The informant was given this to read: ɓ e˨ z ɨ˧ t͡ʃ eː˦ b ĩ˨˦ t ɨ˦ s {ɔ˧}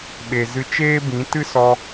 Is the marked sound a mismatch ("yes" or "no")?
no